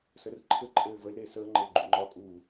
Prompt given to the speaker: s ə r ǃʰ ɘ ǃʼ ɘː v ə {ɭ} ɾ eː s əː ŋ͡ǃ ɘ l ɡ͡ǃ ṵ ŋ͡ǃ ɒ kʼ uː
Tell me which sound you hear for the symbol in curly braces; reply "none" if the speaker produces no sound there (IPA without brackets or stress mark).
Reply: l